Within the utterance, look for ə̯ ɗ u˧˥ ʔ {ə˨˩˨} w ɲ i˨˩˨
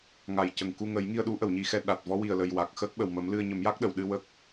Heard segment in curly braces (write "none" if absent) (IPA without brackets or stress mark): ə˨˩˨